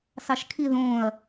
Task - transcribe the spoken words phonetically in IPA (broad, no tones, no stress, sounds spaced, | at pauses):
s ɑ ʃ kʰ i ð õ ɐ̯